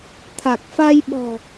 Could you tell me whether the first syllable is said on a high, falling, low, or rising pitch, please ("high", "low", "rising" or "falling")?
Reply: low